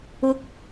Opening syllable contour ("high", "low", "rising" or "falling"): rising